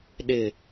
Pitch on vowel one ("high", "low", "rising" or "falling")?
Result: falling